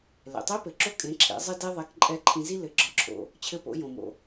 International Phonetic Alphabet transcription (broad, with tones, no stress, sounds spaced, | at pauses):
l ɛ̰˩ tˤ e˧˥ p ɘ˩ ǁ o˧˥ kʼ ẽ˩˧ ǁʰ ḛ˩˧ zˤ ɘ˧ d e˧ ðˤ ɛ˩˧ k ǃʼ ɛ˧˥ ǃʰ ĩ˧ z i˥ l ɘ˩˧ ɡ͡ǁ ɒ˩˧ ǁʰ o̰˩ | t͡ɕʰ ɘ˧ p o̰˩˧ j õ˩ m o̰˩